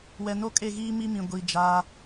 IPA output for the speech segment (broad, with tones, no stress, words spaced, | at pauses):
wɛ˨no˦kʼe˦˨ɣiː˦ mi˦mĩ˨ ɡʷi˨d͡ʒa˦